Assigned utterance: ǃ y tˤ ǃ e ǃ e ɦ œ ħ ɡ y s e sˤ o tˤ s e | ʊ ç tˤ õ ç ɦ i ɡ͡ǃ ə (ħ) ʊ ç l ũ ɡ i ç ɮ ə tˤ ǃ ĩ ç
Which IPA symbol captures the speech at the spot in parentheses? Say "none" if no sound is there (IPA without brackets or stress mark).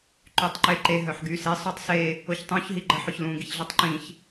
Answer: ħ